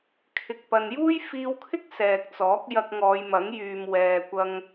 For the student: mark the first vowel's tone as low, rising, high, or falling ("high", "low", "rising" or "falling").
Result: low